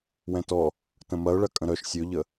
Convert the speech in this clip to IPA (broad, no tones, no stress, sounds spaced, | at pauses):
w ɛ̃ t ɔ | t ə̃ m ɐ ʊ̯ ɭ ɐ kʼ ə̃ ɾ œ ʃ sʲ ɵ ʎ ə